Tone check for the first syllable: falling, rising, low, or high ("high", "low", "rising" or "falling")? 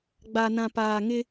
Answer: low